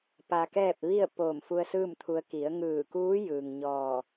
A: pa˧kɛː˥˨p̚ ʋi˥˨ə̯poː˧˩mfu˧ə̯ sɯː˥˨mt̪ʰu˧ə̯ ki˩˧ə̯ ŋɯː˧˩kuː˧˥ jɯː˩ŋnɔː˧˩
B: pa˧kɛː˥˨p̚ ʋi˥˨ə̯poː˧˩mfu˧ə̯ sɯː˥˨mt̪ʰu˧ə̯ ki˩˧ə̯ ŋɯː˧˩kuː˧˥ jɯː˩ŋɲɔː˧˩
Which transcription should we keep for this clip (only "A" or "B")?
B